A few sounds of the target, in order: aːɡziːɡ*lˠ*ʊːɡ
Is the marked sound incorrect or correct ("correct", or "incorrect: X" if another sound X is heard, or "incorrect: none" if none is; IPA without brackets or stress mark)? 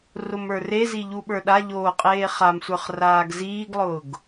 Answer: correct